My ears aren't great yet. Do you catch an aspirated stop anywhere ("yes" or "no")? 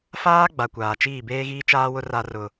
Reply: no